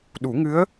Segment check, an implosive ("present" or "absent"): present